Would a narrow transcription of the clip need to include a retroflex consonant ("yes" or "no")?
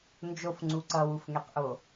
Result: no